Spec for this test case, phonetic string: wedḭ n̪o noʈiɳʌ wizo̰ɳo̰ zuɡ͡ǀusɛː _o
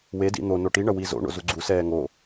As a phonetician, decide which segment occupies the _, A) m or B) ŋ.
B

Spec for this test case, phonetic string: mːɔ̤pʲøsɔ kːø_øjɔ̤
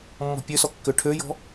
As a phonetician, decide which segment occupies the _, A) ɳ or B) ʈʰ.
B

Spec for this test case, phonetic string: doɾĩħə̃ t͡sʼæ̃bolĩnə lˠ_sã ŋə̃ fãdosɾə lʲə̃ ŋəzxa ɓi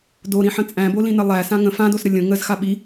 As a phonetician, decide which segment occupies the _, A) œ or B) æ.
B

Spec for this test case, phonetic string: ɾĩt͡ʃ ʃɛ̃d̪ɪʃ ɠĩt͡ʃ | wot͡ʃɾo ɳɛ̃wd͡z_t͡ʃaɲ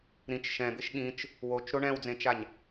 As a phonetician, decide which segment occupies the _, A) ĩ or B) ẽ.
B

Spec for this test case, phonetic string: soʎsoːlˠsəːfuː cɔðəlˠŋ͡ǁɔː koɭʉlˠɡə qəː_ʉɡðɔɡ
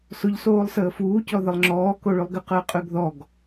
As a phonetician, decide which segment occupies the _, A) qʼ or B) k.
A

